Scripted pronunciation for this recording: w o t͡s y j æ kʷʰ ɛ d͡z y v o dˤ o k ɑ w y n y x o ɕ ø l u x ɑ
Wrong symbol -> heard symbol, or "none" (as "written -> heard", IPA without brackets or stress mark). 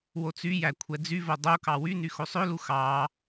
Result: ɕ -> sˤ